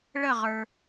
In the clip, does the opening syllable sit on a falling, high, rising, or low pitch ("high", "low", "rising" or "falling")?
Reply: falling